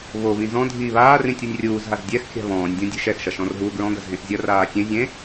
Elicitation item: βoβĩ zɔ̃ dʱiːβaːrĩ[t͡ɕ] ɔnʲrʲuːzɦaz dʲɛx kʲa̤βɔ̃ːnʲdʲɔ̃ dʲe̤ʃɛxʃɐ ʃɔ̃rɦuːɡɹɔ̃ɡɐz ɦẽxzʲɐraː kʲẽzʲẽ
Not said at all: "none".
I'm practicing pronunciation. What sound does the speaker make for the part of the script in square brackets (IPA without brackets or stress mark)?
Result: tʲ